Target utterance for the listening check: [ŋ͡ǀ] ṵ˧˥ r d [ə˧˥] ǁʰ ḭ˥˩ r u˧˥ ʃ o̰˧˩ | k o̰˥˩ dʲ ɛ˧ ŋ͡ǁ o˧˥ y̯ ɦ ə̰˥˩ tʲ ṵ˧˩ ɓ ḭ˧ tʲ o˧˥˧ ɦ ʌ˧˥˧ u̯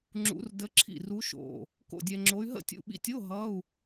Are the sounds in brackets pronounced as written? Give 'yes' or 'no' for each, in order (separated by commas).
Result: no, yes